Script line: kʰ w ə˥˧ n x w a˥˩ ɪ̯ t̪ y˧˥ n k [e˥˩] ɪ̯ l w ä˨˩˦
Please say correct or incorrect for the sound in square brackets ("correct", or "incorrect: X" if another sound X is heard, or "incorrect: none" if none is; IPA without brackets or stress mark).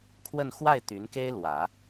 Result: incorrect: e˥